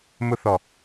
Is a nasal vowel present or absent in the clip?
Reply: absent